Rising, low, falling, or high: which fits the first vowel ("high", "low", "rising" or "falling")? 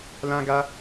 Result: high